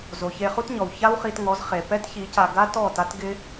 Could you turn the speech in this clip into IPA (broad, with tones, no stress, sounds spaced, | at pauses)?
z o˨ ç e˧ χ u˦ t ɲ ɔ˨ w ç a˦ w χ i˧ t ŋ ɔ˨˦ z χ e˨ p ɛ˦ t ç i˨˦ c a˧ ɡ a˦ t ɔ˦˨ t a˦ t ɡ ɪ˦